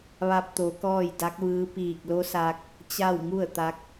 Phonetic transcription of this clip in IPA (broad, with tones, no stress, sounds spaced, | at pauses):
ʋ a˧ p̚ t̪ o˩˧ k ɔː˥˨ j d a˧˥ k̚ ʋ ɯː˧˥ p iː˧˩ k̚ l o˧˥ s a˧ k̚ | t͡ɕ a˥˨ w ŋ u˥˨ ə̯ t̪ a˧˥ k̚